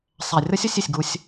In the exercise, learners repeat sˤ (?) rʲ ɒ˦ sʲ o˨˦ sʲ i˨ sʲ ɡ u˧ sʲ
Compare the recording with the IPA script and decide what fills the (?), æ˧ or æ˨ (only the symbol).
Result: æ˨